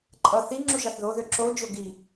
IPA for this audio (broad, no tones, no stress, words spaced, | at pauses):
ǃʼʌ θi ŋ͡ǁuʒɑθðoðø ǁo d͡ʒoɡi